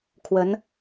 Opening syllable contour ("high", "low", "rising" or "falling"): rising